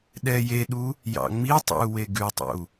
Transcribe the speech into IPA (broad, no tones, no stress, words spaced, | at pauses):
ɗɛjeɗu | jɑ̰ŋ͡mitˤo̰u̯we ɡʉtˤo̰u̯